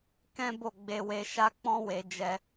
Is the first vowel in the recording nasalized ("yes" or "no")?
yes